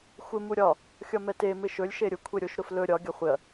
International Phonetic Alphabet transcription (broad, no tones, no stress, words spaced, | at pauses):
xʷɪ muɾʲɒ | xʲɒmɛte mɪʃɵlʲ ʃeɾʲʊ kʷʰeɾʲoʃ ɾʊflɵ ɾʲɒ ɡʲɒχʷɪɐ̯